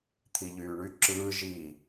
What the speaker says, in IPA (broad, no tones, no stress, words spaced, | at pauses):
t̪ʰiʎyːɳy ǁɯː ʒi